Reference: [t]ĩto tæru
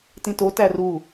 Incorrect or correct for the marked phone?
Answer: correct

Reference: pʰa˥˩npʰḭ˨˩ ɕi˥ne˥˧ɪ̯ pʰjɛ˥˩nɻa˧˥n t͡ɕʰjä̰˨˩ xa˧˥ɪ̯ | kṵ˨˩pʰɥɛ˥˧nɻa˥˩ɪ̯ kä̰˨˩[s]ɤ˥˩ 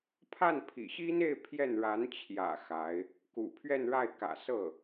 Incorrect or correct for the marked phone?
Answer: correct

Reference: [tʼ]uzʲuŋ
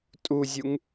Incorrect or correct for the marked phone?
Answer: correct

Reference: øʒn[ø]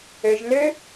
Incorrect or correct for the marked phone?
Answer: correct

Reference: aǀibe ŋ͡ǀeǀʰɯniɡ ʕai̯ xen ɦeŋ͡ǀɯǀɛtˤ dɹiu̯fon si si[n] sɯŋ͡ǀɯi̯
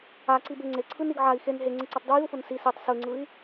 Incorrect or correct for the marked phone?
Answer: incorrect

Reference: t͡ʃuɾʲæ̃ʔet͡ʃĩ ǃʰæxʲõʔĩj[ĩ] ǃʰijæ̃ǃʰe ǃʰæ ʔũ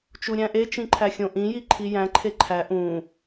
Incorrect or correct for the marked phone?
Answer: incorrect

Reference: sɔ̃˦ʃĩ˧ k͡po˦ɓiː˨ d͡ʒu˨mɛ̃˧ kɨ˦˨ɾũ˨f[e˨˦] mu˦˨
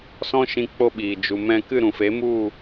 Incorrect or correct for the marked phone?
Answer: correct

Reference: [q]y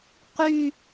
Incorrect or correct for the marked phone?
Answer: correct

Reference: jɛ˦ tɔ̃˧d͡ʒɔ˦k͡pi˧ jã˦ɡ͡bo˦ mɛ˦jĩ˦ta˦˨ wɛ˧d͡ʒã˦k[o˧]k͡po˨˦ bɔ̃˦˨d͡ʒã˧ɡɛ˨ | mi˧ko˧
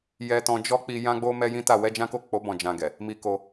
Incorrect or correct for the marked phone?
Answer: incorrect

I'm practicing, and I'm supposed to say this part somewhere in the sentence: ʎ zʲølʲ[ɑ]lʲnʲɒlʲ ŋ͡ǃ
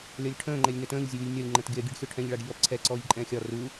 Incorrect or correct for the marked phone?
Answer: incorrect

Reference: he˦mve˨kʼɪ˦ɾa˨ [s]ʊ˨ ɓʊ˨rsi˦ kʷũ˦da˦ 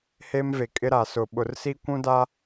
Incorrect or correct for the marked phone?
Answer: correct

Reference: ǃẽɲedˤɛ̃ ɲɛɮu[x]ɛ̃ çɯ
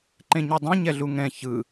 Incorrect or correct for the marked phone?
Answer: incorrect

